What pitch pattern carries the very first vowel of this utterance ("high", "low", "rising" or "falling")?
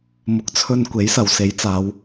low